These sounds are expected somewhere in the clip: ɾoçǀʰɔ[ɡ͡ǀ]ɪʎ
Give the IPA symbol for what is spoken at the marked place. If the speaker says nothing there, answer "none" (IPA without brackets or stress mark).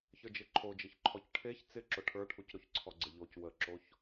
ɡ͡ǀ